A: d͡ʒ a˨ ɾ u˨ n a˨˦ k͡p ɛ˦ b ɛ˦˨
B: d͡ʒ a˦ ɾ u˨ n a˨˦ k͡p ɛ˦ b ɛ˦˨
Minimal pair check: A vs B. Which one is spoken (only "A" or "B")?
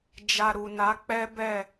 A